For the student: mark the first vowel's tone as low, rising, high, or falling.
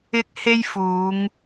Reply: high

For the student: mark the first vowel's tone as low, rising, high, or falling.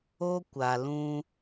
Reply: high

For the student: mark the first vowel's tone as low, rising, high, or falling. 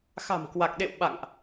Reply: low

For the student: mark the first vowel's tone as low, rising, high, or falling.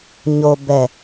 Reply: low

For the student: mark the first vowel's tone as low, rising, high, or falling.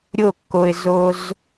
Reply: falling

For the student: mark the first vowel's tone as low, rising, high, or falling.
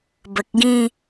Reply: low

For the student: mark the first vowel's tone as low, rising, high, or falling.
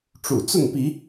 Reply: low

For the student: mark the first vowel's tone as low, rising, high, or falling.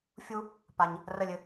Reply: high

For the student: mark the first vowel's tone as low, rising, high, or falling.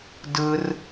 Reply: high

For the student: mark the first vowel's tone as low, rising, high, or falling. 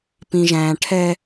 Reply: high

